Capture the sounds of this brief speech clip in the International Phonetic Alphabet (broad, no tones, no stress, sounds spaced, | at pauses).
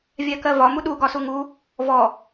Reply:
vʲ æ k ɜ v ɒ m u ɗ u ɡ ɒ s u ŋ u | v ɔ